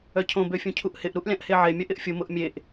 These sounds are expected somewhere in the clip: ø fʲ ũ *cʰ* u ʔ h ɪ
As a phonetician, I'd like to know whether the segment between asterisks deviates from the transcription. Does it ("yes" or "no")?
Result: no